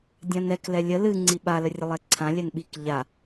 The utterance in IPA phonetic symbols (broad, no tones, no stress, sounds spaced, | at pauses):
dʲ ã n ɛ k l ɛ lʲ ə l ɨ ŋ͡ǀ i ɓ a l ə rʲ ə lˠ ɛ ǀʰ ã lʲ ɛ n ɓ i k ʎ a